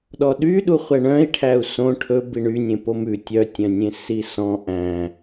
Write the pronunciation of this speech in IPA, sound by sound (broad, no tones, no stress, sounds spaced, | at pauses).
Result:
ɗ ɔ ɗ y ɗ u χʷ ɛ ɳ œ̃ i̯ ʈʰ æ u̯ s õ ʈʰ ɵ b i ɳ y nʲ ẽ p o m ʉ tʲ œ tʲ œ̃ nʲ ẽ s i s ɔ̃ ʔ æ̃